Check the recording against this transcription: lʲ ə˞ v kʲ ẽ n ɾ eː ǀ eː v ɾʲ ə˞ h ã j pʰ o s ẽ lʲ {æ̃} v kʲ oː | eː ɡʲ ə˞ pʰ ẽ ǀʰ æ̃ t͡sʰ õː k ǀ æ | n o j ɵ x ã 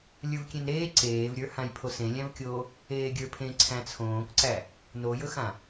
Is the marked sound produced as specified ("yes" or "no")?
yes